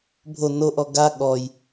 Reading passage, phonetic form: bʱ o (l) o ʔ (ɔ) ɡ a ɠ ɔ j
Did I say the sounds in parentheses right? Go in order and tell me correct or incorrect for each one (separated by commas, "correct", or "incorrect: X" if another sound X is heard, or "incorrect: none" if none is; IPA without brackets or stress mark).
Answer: incorrect: n, correct